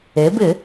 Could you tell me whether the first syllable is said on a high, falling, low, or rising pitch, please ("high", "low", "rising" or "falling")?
rising